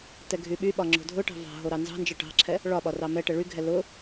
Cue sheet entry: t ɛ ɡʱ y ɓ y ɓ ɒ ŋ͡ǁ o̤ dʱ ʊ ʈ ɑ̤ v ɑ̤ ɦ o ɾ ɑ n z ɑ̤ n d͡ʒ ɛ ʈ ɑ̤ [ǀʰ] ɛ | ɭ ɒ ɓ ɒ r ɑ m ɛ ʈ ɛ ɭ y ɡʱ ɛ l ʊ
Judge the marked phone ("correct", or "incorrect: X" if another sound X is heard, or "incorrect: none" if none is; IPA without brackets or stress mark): incorrect: ǁʰ